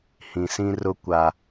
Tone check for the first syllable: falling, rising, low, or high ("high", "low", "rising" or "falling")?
low